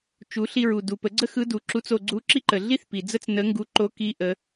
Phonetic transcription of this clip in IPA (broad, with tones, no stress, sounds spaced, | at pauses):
t͡ʃ u˩˧ ɬ i˧ ɹ u˩ d u˩ p ə˩˧ ɡ͡ǀ ə˥ x ɯ˧˥ d u˩˧ ǁ u˧˥ t͡s o˧ ɡ͡ǀ u˧˥ ǁ i˥ ǃ ə˩ ɮ i˥ θ p i˩ d͡z ə˥ t͡s n ə˧˥ ŋ ɡ u˧˥ ǃ o˧˥ k i˧˥ ʔ ə˩˧